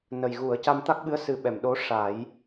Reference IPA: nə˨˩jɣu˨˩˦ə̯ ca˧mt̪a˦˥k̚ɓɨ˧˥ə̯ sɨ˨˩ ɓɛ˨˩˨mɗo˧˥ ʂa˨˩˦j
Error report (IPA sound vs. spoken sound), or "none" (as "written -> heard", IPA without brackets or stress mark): none